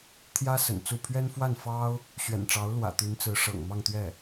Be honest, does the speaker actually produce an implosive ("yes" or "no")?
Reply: no